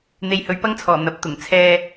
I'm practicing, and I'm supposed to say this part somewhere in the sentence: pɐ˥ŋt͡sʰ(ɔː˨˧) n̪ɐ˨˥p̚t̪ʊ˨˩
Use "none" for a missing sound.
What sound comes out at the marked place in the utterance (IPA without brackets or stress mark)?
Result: ɔː˨˩